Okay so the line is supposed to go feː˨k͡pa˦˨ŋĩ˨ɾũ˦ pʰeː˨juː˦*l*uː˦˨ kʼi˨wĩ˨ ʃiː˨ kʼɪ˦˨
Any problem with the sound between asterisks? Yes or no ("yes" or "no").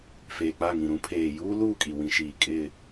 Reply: no